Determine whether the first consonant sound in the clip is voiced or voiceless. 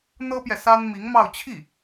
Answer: voiced